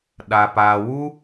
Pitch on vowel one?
low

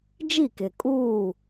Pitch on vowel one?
falling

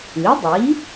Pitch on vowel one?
rising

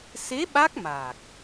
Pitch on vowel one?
rising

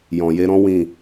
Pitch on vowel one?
low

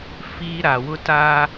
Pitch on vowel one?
high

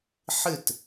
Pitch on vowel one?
falling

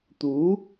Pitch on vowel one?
rising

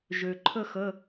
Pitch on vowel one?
low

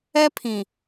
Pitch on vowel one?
high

